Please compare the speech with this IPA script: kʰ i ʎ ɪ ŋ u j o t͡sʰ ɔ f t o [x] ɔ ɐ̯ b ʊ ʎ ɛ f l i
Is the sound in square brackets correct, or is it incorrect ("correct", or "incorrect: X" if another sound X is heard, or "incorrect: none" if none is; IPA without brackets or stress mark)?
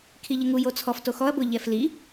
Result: correct